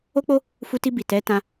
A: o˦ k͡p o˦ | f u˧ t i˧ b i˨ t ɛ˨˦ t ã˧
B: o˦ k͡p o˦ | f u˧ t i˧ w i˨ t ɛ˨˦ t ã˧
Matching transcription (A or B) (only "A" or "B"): A